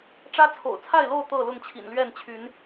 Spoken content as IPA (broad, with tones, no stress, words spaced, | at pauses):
ʈ͡ʂä˦t͡sʰo̰˨˩ʊ̯t͡sʰa˥˨ɪ̯lo˥˨ʊ̯ t̪ɤ˥˨lʊ˥˨ŋt͡ɕʰḭ˨˩nlɥɛ˥˨n t͡ɕʰy˨˦n